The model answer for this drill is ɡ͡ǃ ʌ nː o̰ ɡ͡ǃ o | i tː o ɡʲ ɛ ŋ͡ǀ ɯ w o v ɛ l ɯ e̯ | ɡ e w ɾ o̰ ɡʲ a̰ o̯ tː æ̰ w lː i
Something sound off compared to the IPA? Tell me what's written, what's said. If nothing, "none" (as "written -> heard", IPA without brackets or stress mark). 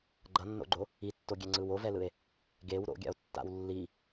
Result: æ̰ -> a̰